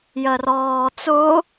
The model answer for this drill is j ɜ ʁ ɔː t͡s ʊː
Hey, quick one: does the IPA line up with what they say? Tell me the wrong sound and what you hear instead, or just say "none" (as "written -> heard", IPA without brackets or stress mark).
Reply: ʁ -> r